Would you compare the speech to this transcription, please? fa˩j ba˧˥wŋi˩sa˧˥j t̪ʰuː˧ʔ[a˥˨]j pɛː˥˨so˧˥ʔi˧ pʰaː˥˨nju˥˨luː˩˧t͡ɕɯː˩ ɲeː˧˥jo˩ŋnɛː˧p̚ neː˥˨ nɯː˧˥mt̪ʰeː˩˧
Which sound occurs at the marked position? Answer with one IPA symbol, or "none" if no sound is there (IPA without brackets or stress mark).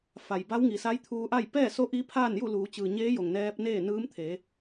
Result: a˥˨